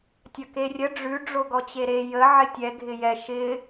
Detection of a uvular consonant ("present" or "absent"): absent